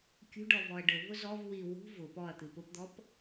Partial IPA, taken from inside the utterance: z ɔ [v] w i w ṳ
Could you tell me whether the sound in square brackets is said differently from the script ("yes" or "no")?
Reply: no